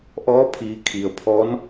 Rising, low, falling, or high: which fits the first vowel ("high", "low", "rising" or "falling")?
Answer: rising